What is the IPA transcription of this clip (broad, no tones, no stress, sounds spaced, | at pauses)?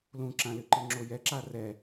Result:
l ũ ǁ ã l ɨ ǃ ɨ ŋ͡ǁ o j ɛ ǁ a r ɛ